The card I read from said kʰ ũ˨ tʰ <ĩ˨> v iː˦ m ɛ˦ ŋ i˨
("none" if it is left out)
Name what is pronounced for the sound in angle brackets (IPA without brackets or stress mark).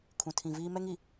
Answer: ĩ˨